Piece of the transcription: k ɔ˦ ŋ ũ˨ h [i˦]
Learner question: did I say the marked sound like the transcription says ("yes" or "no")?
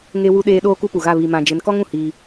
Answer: no